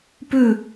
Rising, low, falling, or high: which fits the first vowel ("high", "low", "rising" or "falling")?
falling